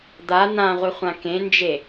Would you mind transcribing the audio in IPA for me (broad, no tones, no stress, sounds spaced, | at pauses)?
d̪ a n̪ ã ʁʷ ɨ χʷ ã k ẽ n d͡ʒ e